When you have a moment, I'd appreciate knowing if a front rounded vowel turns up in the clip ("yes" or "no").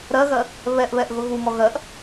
no